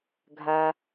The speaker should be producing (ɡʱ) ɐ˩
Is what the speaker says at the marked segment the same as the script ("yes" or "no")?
yes